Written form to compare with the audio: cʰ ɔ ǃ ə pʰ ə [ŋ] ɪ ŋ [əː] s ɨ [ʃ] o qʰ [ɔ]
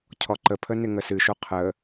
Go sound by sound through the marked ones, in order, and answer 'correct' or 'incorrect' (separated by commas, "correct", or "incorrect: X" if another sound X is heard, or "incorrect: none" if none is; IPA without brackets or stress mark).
incorrect: n, incorrect: ə, correct, incorrect: ə